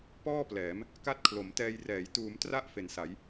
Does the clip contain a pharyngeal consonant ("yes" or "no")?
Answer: no